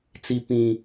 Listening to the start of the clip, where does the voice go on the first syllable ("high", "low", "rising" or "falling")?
high